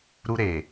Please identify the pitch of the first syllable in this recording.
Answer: high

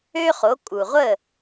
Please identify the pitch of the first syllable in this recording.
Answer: high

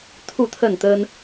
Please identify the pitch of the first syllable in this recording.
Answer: falling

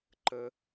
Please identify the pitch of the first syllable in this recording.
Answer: high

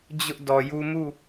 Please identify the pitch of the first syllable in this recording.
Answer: high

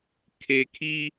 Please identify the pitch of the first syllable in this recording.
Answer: low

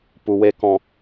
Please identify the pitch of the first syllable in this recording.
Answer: low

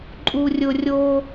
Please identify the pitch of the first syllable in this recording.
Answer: low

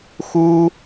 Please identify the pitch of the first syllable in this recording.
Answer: high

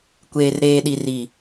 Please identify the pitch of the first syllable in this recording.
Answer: low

